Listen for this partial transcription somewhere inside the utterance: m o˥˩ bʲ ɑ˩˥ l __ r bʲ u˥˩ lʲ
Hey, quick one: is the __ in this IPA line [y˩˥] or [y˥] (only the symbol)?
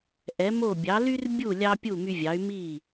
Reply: y˥